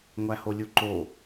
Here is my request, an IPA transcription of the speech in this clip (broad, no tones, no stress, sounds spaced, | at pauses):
ŋʷ æ h o lʲ u ǃ o